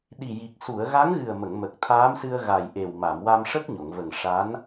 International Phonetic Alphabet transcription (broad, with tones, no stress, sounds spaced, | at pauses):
ɗ i˨˩ j i˨˩ k̚ s u˨˩˨ ə̯ ɣ a˧˥ ŋ ɣ ɨ˨˩ ə̯ m ə˨˩˨ ŋ m ə˨˩ k̚ t̪ʰ aː˧˥ m s ɨ˧ ə̯ ɣ a˨˩ j ʔ e˨˩ w m a˨˩˨ m w a˧ m ʂ ə˦˥ k̚ ɲ o˨˩˨ ŋ v ə˨˩ ŋ ʂ a˧˥ n